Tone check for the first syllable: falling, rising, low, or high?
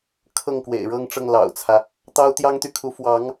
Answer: falling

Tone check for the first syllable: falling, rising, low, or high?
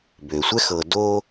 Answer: low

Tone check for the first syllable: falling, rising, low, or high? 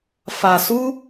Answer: low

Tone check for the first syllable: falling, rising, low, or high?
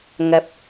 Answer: low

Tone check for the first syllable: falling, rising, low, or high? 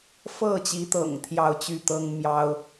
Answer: falling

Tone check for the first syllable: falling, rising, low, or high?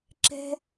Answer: high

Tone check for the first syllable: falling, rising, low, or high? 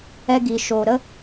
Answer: high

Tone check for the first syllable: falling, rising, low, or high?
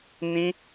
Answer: high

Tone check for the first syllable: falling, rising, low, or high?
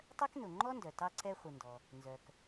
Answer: high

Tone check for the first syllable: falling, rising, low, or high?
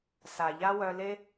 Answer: low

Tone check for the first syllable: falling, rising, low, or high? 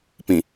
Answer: low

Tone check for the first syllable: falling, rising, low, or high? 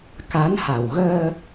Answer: rising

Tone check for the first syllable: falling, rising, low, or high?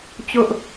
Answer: high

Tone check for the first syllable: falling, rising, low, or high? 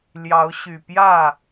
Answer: rising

